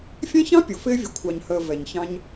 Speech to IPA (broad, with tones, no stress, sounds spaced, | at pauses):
fʲ ɛ̃˦ ç ɑ̃˦ pʲ ʊ˨ f ɪː˦ vʲ ʊ˨ kʷʰ ɑ˨ ɲ h əː˨ v ɛ˨ ɲ ç ɑ̃˦ ɲ